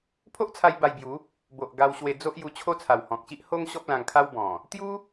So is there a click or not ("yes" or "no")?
no